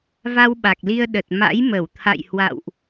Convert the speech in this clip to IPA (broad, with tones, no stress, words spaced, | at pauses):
va˧wɓa˨˩k̚li˧ə̯ ɗə˨˩t̚ma̰˧˥jmə˧˩w t̪ʰa̰˧˨j hwa̰˧˨wʔ